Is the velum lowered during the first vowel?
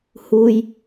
no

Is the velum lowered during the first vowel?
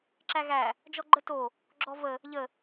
no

